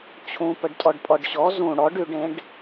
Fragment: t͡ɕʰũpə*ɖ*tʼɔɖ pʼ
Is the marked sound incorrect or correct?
correct